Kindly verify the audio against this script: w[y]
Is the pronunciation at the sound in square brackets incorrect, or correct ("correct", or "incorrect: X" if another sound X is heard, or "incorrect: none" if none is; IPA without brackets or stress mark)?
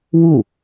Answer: incorrect: u